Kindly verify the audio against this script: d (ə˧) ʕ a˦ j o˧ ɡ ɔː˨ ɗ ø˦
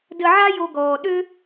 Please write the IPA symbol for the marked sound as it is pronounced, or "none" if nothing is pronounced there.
ə˧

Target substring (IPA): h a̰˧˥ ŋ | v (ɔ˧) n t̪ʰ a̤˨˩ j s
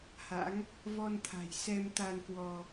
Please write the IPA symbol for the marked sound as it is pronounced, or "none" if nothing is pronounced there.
ɔ˧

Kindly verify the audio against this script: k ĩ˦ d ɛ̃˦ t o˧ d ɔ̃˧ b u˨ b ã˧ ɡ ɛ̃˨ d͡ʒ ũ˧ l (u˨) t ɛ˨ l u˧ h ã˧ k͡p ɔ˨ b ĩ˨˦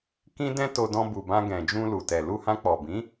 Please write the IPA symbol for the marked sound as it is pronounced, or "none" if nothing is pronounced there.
u˨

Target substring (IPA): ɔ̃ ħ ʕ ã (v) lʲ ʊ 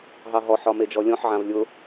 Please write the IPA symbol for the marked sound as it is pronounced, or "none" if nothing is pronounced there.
v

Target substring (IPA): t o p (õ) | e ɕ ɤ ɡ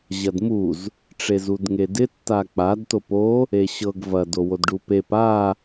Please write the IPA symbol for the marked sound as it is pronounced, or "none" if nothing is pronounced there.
o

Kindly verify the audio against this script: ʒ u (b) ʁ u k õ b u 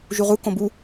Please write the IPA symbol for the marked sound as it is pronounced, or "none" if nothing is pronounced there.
none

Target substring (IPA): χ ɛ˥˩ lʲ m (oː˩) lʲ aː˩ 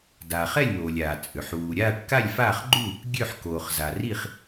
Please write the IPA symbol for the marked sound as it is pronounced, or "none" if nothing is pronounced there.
oː˩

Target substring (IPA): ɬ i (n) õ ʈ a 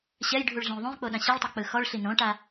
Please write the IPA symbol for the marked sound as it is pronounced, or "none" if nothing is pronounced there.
n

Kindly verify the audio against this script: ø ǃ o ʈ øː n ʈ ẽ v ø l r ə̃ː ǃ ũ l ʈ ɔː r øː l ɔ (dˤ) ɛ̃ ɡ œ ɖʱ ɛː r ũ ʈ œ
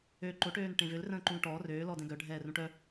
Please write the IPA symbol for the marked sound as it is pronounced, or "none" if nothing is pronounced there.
d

